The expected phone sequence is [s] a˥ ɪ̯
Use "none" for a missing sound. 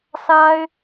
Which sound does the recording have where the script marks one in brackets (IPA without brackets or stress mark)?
s